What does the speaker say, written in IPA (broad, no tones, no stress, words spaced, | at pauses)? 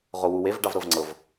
ʁowuwev ɖɑvɾɤvŋ͡ǀɤv